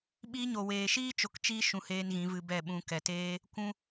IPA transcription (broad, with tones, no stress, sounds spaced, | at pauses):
ɓ iː˧ ɲ o˨ w eː˨ ʃ iː˦ t͡ʃ o˧ k t͡ʃ iː˦ ʃ ũ˧ h eː˦ n ɣ ĩ˨˦ v ɨ˧ b ɛ˦˨ ɓ ũ˧ k ɛ˨ t eː˦ | kʷ ũ˦